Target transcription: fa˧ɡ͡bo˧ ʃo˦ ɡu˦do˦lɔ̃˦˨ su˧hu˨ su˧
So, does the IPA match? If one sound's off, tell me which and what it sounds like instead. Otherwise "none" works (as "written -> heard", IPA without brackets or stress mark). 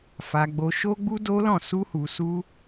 ɡ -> ɡ͡b